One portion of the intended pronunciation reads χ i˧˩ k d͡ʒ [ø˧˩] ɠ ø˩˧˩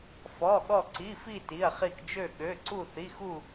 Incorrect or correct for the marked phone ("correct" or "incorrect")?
correct